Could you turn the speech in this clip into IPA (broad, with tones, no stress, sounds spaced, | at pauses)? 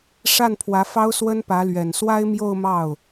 ʂ a˥˩ n pʰ w ä˧˥ f ɑ˥ ʊ̯ s w ə˥ n p ä˧˥ l ɥ ɛ˨˩ n s w a˥ ɪ̯ m j o˥˧ ʊ̯ m ɑ˥˩ ʊ̯